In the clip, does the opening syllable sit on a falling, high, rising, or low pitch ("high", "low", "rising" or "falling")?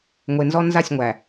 low